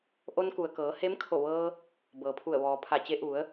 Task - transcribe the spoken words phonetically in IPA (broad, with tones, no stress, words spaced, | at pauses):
ʔo˧nku˩ə̯kɤː˩˧ he˧˥mkʰo˧˩ʋɤː˧ | bɤː˩pʰu˧˩ə̯ʋɔː˩ pʰa˧˩t͡ɕe˧˥ ʔu˩˧ə̯